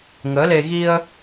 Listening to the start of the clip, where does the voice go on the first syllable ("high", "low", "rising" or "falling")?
rising